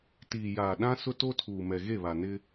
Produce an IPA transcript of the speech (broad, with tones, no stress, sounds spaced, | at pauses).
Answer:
t iː˨ j aː˨ ɗ ã˦ s ʊ˦ t o˦ tʰ uː˨ m ɛ˨ ɣ e˦˨ β a˨ n ɪ˦